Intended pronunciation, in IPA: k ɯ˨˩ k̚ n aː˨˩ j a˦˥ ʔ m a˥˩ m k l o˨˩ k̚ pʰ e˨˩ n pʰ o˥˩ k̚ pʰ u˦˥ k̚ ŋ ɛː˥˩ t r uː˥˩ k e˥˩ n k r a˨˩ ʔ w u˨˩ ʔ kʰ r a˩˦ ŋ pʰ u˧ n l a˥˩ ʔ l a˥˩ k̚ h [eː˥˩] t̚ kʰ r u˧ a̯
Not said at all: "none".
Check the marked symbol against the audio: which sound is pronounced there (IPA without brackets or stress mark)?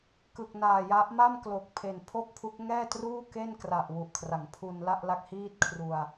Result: iː˥˩